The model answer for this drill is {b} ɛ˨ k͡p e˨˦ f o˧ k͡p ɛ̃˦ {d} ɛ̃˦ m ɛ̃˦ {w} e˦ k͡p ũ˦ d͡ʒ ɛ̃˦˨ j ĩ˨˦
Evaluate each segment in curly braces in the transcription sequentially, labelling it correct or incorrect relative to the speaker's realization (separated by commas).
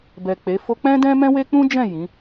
correct, correct, correct